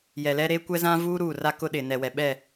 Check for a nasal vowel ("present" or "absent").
present